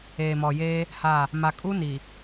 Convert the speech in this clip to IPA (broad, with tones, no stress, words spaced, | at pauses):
eː˨mɔ˨jeː˦ | ha˦˨ | ma˨kʼu˦ ni˨